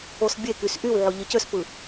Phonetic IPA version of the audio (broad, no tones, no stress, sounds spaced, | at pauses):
o s bʲ e k y s ʔ y w ʕ o ʎ ɯ c ø s p ɯ